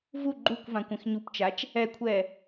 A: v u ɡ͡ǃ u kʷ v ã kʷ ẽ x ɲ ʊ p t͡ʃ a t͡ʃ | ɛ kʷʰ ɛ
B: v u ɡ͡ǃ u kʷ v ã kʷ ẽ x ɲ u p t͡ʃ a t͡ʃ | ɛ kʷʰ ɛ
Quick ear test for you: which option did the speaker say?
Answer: B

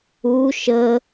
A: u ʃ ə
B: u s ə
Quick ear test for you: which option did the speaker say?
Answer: A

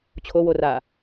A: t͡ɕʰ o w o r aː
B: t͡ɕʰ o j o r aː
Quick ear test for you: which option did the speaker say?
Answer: A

